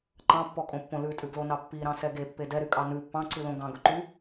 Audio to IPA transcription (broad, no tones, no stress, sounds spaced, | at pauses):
ǃ ɑ̃ pː ɔ kʼ õ pː õ l ʉ tʼ ʉ ɡ l o n ɑ pː i ɾ ɑ̃ s ɛ ɡ e pː e d ɛ ɾ y kʼ ɑ n ʉ pː ɑ̃ ǀ ʉ l õ ɡ ɑ̃ ɡ ɵ ǃ y